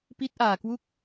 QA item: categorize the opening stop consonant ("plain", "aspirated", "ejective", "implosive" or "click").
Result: plain